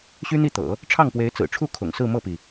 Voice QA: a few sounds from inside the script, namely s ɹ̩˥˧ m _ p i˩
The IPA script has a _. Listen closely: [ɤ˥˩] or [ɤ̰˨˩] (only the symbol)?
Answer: ɤ˥˩